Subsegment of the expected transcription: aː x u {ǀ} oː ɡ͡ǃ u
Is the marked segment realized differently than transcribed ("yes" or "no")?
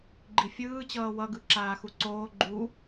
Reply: no